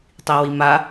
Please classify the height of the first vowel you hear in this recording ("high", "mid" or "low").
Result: high